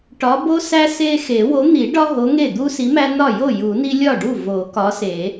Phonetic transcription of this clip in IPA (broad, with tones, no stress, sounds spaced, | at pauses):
ʈ ɒ˨˥ b o˦ s æ˦ s e˦ x e˨˩˦ w o˨˥ n̪ i˨˩˦ ɖ ɒ˦ ɦ o˨˥ ŋ e˥˩ d̪ u˦ s i˨˥ m æ˦ n ɒ˥˩ j o˥˩ j u˨˩˦ n i˦ lʲ ɒ˥˩ ɖ u˥˩ v o˨˩˦ k ɒ˨˥ s e˨˩˦